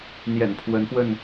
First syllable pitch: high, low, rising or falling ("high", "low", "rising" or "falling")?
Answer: low